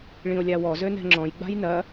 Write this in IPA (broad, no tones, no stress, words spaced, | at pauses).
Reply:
ɭĩo̯lʲawɔ zønɛ̤ŋ͡ǁɔ̃j ɡ͡ba̤jnɐ